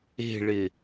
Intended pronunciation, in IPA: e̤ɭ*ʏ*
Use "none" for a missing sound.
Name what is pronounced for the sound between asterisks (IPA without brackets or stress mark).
ɪ